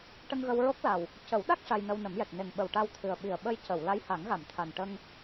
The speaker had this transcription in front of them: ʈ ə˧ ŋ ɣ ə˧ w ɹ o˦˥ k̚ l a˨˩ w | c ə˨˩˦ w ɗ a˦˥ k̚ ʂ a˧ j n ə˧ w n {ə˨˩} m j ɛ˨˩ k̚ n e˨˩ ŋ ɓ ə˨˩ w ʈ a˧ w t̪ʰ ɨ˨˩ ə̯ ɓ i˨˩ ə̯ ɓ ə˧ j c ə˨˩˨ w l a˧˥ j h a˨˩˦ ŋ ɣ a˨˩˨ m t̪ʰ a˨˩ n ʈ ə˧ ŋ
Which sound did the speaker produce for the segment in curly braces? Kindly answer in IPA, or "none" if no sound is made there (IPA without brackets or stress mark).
ə˨˩˦